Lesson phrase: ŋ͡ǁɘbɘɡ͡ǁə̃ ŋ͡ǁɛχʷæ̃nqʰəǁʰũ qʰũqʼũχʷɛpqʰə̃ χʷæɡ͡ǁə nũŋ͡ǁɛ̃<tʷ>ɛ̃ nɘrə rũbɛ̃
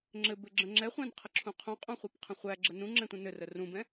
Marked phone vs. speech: correct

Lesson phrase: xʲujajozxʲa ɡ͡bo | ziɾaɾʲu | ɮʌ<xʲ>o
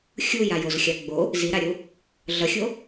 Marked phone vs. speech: correct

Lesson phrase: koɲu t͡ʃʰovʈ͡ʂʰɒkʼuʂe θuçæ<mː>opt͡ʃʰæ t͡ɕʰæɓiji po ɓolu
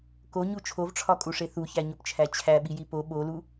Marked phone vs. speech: incorrect: ɲ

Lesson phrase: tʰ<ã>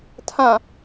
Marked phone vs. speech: correct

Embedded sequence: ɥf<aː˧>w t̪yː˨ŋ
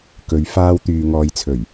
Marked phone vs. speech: correct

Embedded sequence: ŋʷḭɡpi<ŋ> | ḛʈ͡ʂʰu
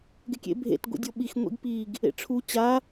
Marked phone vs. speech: incorrect: ɡ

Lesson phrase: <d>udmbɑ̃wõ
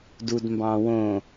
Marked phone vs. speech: correct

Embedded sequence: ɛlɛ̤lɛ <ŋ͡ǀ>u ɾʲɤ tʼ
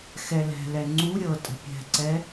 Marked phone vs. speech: correct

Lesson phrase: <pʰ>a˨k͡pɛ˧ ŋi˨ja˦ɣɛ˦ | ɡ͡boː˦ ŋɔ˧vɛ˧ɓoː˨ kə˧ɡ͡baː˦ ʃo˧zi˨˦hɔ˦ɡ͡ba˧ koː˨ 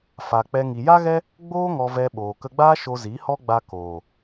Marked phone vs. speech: incorrect: f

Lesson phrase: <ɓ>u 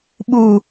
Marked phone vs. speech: correct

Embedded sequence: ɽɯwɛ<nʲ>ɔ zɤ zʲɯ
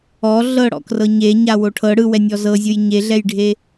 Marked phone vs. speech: correct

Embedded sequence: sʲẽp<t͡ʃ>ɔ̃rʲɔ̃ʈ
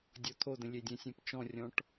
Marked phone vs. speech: correct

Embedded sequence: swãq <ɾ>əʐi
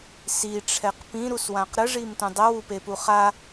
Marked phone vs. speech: correct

